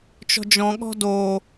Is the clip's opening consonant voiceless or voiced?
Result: voiceless